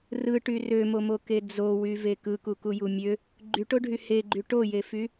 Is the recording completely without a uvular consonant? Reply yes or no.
yes